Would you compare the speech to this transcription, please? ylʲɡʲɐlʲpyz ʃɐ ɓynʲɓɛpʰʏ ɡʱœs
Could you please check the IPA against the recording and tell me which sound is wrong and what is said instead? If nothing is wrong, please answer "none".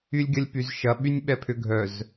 s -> z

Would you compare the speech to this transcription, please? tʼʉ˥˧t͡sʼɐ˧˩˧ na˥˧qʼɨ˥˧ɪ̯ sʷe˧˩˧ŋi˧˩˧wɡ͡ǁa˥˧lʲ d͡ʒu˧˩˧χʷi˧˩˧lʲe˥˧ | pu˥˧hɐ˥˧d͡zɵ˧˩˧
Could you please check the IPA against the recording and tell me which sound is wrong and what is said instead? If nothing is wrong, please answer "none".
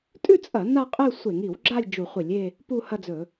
none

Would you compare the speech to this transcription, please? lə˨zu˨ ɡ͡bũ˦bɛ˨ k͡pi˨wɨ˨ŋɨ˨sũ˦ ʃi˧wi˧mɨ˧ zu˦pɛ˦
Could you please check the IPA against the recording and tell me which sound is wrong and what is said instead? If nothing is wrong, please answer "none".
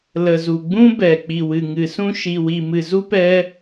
none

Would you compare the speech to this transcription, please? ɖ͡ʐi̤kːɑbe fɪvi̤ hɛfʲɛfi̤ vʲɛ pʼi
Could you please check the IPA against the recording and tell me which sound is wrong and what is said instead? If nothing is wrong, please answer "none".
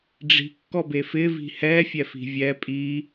ɑ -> ɔ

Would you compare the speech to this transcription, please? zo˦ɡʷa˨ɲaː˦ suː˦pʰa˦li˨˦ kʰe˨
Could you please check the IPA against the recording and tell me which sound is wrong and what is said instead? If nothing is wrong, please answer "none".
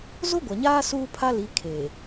none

